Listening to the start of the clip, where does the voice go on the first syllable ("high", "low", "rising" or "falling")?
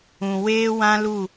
low